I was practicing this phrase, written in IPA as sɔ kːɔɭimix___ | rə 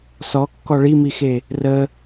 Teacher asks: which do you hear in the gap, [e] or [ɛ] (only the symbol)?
e